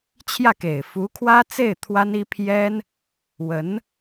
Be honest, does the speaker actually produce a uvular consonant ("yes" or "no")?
no